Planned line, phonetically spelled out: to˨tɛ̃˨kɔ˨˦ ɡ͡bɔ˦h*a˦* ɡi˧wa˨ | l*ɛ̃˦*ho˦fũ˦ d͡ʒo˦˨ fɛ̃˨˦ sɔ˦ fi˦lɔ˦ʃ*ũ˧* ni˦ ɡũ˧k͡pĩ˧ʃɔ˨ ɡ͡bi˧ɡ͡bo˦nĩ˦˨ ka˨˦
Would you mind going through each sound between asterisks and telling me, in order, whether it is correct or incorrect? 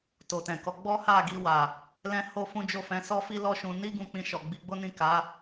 incorrect: a˦˨, correct, correct

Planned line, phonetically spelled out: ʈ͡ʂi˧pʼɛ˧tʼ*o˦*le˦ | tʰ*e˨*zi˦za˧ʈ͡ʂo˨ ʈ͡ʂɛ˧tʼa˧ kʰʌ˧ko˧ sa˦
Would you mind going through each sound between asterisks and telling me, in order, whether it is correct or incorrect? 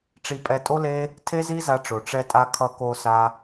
correct, incorrect: e˦

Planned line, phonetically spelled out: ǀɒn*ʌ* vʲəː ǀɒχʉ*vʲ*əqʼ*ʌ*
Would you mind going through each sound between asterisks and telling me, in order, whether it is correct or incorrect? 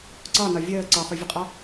incorrect: ɒ, correct, incorrect: ɒ

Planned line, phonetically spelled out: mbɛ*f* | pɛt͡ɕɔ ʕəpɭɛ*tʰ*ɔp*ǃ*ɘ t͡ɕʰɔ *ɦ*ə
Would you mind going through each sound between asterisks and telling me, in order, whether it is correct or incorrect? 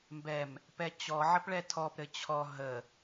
incorrect: m, correct, incorrect: ɾ, correct

